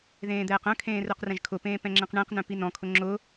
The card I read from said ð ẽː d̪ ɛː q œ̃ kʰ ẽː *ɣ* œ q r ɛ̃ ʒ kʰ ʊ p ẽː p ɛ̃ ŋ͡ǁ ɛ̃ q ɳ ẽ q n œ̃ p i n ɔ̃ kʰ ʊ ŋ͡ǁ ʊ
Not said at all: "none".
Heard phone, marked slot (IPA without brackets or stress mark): r